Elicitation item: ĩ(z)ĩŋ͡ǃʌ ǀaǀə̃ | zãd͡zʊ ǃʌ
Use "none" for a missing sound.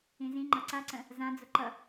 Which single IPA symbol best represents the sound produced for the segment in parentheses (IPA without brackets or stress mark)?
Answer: z